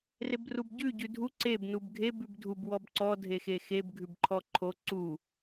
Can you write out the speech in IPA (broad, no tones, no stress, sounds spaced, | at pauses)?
r e b r u b ɟ ʉ ɟ ʉ dʱ u ǀ e b n u b ɡʱ e b ʉ b dʱ u b w ɔ b ǀ ɔ dʱ e x e x e b ɡʱ ʉ b ǃʰ ɔ ǃʰ o ǀ u